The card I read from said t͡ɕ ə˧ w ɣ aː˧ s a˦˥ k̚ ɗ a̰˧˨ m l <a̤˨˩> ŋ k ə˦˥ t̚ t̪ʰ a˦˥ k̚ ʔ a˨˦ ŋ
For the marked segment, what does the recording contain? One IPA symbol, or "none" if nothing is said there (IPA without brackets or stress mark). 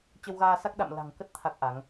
a̤˨˩